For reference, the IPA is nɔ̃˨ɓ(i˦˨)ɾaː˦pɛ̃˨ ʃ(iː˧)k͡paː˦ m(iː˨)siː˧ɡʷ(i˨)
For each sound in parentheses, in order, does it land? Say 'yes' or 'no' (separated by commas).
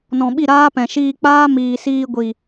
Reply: yes, yes, yes, yes